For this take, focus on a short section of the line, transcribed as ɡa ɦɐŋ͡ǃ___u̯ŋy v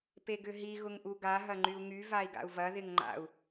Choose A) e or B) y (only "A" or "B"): B